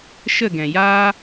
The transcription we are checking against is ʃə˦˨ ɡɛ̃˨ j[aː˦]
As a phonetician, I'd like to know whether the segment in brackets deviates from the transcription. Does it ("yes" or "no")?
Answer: no